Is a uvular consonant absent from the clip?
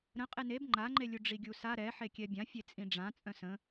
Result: no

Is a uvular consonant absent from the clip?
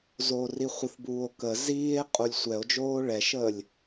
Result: no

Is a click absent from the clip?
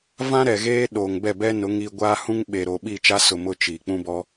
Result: yes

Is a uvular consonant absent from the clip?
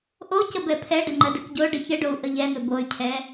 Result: yes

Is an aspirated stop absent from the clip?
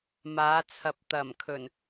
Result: no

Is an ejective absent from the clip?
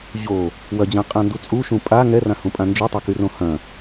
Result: no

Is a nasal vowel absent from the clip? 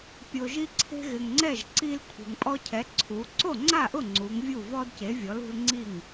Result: yes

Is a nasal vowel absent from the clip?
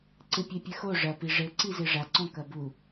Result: no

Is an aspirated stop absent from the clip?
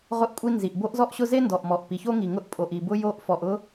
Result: yes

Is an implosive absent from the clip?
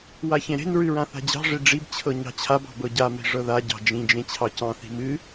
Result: yes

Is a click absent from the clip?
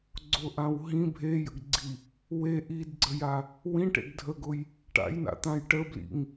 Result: no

